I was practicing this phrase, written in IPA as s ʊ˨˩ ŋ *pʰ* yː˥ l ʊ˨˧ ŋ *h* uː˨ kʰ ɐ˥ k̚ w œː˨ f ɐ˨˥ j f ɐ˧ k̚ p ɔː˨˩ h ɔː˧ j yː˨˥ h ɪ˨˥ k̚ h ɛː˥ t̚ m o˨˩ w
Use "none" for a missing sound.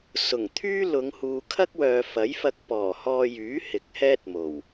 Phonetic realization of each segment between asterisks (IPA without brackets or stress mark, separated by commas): t̪ʰ, h